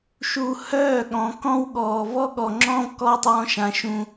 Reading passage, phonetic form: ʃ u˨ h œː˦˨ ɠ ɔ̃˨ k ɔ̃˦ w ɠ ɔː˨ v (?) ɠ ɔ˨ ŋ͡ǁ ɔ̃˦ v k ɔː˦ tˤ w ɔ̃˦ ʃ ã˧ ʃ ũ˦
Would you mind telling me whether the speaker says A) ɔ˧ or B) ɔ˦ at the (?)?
B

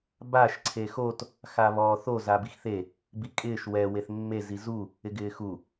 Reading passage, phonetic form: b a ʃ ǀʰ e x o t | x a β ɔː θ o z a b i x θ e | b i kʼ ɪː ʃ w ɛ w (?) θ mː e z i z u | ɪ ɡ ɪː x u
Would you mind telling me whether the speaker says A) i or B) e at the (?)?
B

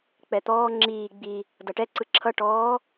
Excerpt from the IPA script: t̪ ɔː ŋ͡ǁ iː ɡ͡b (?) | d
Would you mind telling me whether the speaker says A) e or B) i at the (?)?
B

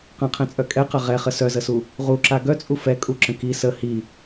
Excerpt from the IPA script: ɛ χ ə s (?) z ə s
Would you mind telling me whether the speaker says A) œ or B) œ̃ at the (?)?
A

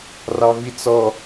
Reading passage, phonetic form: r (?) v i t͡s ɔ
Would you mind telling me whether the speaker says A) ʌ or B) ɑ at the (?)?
B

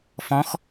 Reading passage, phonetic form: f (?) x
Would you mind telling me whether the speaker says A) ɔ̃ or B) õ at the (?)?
A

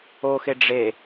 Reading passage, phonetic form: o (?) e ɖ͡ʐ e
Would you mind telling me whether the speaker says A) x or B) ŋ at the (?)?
A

